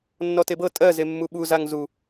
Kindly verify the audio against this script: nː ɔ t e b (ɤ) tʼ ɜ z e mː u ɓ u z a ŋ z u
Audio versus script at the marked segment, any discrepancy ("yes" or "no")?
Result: no